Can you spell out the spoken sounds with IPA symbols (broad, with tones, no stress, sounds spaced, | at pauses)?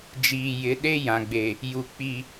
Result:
d͡ʒ iː˨ j ɪ˨˦ ɗ e˦ j ã˨ ɡ͡b e˨ | j u˨ k͡p i˨